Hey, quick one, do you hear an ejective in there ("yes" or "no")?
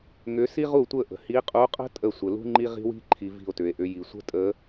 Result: yes